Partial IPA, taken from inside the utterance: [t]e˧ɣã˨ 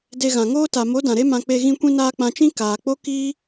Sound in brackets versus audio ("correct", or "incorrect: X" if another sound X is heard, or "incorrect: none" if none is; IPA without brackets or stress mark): incorrect: d